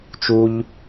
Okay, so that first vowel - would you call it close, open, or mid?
close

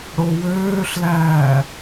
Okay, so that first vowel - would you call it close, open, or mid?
mid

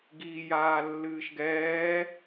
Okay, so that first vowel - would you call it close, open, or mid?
close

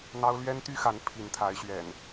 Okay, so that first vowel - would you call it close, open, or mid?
open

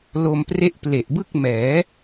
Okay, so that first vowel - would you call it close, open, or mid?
mid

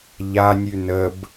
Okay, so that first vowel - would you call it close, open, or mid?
open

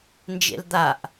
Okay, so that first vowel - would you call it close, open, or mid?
mid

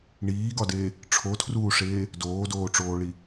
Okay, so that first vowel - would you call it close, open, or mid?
close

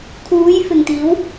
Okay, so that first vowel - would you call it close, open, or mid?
close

